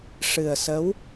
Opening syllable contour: low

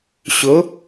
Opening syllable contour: rising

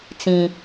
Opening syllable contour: high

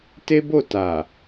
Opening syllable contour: high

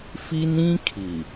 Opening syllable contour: high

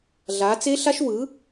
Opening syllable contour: rising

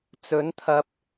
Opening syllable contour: rising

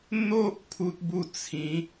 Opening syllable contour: high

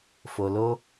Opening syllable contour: low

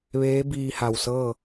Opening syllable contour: rising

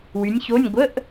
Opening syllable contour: rising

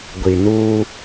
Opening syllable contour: low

